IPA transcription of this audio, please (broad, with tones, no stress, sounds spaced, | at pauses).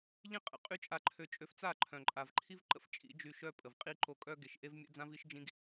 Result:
ʎ ĩ˦ qʼ ə̰˨ qʼ y˦ t͡ʃʼ a˧ ǃʰ ø˧ t͡ʃʼ ø˧ f t͡s a˦˨ ǃʰ œ̃˨ ǃʼ a˨ v ǃʰ i˦ v ǃ ə̰˦ f t͡ʃʼ ḭ˨˦ d͡ʒ y˧ ʃ œ˦ pʼ ə˨ v qʼ i˦ ǃ o˧ kʼ œ˦ ɡ e˨ ʃ ʔ e˦ v mʲ ɛ̰˦ d͡z ã˦ v i˦ ʃ d͡ʒ ĩ˦ ɡ